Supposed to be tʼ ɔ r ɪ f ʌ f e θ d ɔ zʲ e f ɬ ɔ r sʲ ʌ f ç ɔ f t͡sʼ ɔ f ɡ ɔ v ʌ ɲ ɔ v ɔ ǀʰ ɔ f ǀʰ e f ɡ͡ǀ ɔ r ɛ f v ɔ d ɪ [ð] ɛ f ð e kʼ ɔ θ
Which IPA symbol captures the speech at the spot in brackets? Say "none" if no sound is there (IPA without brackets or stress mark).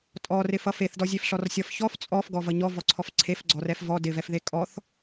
v